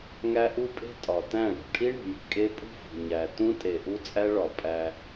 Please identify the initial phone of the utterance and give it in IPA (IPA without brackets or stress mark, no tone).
ŋ